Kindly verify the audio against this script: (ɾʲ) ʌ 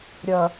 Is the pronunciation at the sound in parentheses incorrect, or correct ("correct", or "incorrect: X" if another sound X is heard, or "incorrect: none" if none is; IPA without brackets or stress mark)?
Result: correct